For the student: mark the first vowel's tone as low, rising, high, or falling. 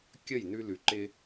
falling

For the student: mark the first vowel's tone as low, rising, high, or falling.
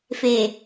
low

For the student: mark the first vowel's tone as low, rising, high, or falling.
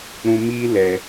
high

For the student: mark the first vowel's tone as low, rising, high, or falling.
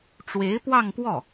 rising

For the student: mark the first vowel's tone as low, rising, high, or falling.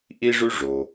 high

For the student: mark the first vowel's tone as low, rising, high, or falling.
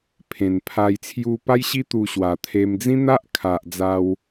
low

